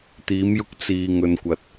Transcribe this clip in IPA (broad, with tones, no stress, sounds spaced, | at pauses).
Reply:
t̪ iː˨˧ m j ʊ˧ k̚ t͡s iː˨ ŋ ɵ˨ n kʷ ɐ˨ t̚